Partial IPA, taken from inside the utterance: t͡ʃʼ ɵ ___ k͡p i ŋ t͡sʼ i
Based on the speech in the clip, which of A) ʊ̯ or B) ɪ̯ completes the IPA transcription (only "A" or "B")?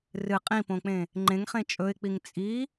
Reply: B